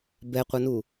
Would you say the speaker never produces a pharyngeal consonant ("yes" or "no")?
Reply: yes